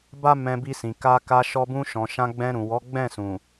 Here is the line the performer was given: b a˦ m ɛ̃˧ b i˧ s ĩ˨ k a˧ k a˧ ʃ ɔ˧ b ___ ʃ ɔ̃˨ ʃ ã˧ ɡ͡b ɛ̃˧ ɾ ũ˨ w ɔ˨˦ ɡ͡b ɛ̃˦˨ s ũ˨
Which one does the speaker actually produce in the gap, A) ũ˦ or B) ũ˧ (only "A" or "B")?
B